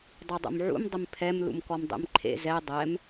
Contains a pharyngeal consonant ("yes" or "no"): yes